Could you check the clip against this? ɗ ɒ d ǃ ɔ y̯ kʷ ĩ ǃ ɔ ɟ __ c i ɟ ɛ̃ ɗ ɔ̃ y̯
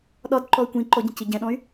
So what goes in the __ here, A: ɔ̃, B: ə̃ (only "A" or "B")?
B